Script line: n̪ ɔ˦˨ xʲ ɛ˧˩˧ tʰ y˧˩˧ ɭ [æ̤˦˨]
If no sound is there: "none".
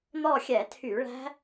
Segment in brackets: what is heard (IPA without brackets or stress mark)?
æ̤˦˥